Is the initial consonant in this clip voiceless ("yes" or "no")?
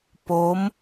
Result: yes